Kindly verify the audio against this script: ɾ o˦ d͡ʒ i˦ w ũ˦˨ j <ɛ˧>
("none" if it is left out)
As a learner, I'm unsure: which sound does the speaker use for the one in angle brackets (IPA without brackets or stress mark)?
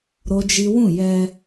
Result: ɛ˧